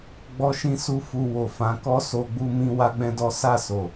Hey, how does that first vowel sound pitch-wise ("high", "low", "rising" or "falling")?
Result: high